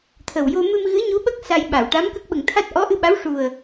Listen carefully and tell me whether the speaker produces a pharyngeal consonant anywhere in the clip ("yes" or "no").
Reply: no